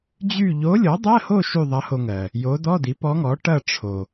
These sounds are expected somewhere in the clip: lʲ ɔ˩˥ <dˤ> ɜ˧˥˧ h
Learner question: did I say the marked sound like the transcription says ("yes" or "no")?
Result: yes